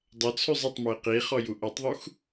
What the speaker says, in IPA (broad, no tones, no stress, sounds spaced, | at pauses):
dˤ ʌ t͡sʰ ʉ zˤ i tˤ m ʉ ɪ̯ q i χ ɔ j u ʔ ʌ tˤ ðˤ u x